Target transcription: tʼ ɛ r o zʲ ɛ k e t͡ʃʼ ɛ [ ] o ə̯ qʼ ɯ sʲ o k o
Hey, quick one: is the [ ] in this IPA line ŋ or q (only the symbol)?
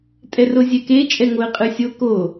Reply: ŋ